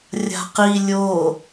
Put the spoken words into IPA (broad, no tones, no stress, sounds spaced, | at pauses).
rʲ a̤ q i lʲ o